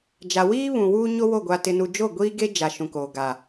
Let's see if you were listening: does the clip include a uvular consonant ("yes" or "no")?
no